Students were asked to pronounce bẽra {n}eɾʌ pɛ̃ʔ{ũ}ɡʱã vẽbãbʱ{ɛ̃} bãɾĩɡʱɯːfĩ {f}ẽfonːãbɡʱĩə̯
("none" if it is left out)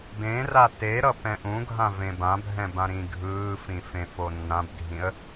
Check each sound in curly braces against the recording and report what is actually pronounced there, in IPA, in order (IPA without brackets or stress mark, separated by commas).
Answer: t, ũ, ɛ̃, f